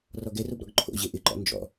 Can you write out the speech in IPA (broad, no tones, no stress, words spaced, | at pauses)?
rɔɡɛrob ɾɔ̰ɡǃʰo̰ʑe ʔɪǃɔ̰ nd͡ʒɔ̰